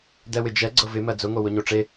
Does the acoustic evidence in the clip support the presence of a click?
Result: yes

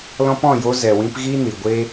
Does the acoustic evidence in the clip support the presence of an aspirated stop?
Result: no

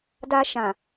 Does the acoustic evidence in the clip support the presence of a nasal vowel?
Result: yes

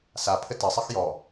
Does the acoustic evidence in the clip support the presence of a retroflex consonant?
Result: no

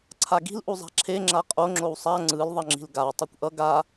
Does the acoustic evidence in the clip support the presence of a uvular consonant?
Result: yes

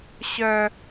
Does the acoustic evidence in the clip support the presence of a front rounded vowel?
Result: yes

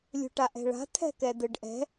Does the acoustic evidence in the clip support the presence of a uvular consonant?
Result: no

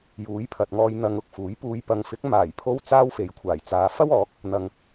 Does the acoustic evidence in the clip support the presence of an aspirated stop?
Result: yes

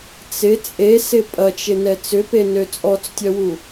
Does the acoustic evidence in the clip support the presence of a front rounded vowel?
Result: yes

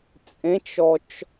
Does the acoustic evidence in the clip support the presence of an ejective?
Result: yes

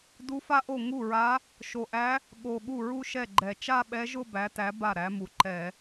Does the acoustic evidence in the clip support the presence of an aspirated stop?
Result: no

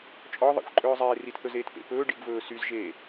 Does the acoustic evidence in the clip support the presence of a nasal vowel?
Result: no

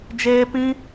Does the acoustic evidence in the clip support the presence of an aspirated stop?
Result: no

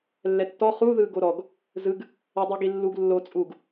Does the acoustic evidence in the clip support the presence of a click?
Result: no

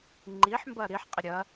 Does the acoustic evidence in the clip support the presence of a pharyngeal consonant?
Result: yes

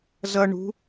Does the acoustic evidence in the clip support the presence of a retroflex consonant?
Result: yes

